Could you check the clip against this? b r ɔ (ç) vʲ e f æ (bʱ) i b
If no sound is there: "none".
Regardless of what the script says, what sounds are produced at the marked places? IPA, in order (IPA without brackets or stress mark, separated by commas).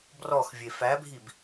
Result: x, bʱ